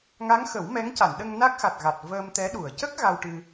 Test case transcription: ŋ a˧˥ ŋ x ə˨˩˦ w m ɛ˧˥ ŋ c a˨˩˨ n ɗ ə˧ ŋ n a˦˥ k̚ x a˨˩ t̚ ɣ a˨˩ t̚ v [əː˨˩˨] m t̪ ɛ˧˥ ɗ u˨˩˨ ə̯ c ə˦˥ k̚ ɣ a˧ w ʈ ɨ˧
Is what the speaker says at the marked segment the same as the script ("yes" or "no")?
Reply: no